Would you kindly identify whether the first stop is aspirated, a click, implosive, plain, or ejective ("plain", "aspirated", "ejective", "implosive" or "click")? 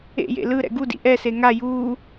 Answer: plain